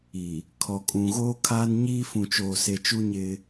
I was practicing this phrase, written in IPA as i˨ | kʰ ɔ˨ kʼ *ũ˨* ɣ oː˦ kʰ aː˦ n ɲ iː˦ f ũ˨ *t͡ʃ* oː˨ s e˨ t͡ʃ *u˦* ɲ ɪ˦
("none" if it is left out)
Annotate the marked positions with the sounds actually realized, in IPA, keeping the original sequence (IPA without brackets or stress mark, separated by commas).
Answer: ũ˨, t͡ʃ, u˦